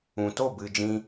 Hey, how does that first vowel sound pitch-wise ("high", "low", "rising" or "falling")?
low